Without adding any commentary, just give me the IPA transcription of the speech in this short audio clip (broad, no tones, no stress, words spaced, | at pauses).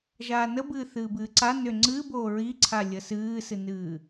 ʒaːnəbɨː θɨːbɨːǀa nʏ ŋ͡ǀɨːboː ɹiǀʰa lʲəsɨːsɨnɨː